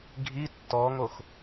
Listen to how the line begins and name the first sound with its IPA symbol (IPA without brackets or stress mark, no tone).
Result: ɡʱ